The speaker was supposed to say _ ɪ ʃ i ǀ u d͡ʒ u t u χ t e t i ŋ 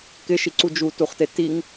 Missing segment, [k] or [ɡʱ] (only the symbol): k